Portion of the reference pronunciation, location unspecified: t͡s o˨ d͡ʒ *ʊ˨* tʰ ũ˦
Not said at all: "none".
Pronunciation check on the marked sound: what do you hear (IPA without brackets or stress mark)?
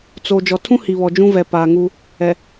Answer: ɔ˨